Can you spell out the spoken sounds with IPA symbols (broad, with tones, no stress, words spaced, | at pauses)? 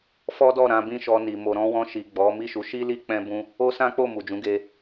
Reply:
fɔ˦dɔ˦˨ ɾã˧bĩ˦ʃɔ˧ni˨ mo˨ɾɔ̃˧wɔ̃˧ʃi˨ ɡ͡bɔ˨˦ mi˦˨ʃu˨˦ʃi˦li˦ k͡pɛ̃˦bũ˦ | o˦sã˦k͡po˦˨ mu˨d͡ʒũ˨˦ɡe˧